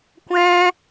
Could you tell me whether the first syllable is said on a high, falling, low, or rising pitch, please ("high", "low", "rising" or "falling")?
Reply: high